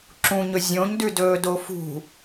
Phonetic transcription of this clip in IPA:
ǁ ũ ɲ ɵ zʲ õ ɲ d ʉ d ɵː d o f ṳ

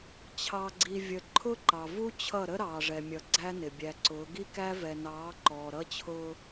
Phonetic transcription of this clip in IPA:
t͡ɕʰ ɑ˨ ɡ͡ǀ i˨ vʲ ə˨ ǃʰ ʊ˦ ǃ ɑ˨ v u˦ t͡ɕʰ ʌ˦˨ ɾ ə˦ ɾ ɑː˨ ʐ ɛ˨ mʲ ʌ˨ ɡ͡ǀ æ˦ n ɪ˨ bʲ æ˨ ǀ ʊː˨˦ ɡ i˦ k æ˦ v ɛ˨ n ɑː˨˦ ǃ ɔː˨ ɾ ʌ˦ t͡ɕʰ ʊː˦

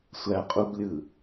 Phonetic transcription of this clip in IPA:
sʷ æ qʼ u b lʲ ɯ

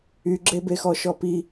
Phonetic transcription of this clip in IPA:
y ɡ͡ǁ e b e x ɔ ʃ ɔ p i

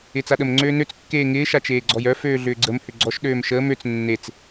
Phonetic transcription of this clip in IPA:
ɪː t͡s a ɗ ə m ŋ͡ǀ øː n ø t͡s kː eː ŋ ɪː ʃ a t͡ʃ eː ɡ͡ǀ ɔ j œ f øː ɮ ʏː ɡ͡ǀ ə m h ʏ ɡ͡ǀ ɔ ʃ ɗ øː m ʃ əː m ø t͡s nː e t͡s

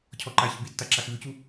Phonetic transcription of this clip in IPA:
cʰ ɔ ǃ a ç ə b i tː a ǁ a x v ʉ c u

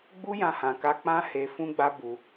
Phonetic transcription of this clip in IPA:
ɡ͡b u˦ j ã˧ h ã˨ k a˧ k͡p ã˦ h e˧ f ũ˦ ɡ͡b a˦ b u˧

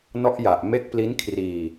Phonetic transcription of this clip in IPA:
n ɔ˦˥ ʔ j a˨˩ ʔ m e˦˥ k̚ p l i˦˥ n kʰ r iː˧

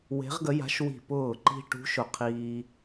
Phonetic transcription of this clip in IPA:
w e̤˧˥ ʁ ɡ ə˧˥ j a̤˧˥ ʃ w i̤˧˩ p ʊː˧˩ ǃ i̤˧ ʈ ṳ˧˥ ʃ ʊ˧˩ qʰ iː˧

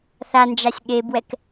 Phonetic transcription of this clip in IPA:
θ a n d͡ʒ a sʲ ɠ e b w ɛ k

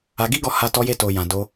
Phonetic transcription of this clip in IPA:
a˧ ɡ i˦ ɡ ɔ˧ h a˧ t ɔ˧ j e˧ t o˨ j ã˨ d o˧

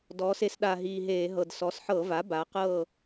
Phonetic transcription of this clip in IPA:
d ɔː˩˧ s e˩˧ s ɗ a˨˩ ɦ iː˨˩ ɦ eː˧˩˧ ɦ ɤ˨˩ d s ɔ˩˧ s ħ ɤ˧˩˧ v a˩˥ b a˩˧ q ɤː˥˨

